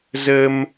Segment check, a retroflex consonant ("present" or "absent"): absent